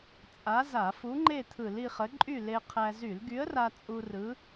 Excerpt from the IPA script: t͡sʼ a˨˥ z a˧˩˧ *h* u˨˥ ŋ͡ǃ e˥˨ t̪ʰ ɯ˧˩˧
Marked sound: incorrect: f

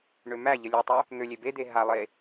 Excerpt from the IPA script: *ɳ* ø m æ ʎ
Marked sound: correct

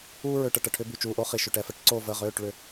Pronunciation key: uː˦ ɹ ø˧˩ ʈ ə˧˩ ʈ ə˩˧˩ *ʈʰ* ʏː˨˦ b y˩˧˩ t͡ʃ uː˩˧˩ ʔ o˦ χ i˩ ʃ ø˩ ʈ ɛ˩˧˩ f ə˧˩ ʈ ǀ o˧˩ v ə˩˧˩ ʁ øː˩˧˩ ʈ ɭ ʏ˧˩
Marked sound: correct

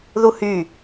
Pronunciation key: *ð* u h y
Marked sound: correct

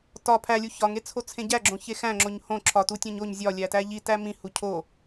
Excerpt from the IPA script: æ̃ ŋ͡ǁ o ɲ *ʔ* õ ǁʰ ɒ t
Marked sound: incorrect: h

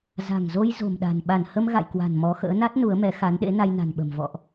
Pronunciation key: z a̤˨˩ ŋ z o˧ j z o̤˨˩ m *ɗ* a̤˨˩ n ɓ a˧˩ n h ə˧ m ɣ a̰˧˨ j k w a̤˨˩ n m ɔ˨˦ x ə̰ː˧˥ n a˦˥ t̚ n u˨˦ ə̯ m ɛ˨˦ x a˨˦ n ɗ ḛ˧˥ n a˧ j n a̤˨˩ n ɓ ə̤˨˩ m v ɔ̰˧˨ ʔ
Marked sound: correct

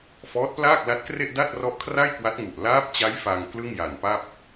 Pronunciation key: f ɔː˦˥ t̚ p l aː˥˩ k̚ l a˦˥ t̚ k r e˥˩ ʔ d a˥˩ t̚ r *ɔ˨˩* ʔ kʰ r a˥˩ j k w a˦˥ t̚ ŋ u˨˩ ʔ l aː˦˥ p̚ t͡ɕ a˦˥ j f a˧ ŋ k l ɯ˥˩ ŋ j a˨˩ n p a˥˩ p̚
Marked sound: incorrect: ɔ˦˥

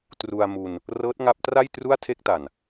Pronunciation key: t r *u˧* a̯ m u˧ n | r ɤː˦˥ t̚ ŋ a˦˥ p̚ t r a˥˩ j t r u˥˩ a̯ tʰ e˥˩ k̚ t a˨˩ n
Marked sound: correct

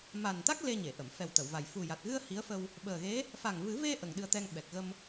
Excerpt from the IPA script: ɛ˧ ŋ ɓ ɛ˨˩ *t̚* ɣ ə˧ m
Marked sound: incorrect: k̚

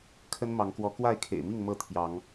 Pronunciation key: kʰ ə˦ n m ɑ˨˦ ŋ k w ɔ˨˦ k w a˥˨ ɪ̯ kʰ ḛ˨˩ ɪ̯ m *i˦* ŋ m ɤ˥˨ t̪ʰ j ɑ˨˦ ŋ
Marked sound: incorrect: i˥˨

